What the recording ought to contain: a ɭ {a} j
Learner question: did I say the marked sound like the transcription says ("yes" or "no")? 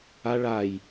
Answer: yes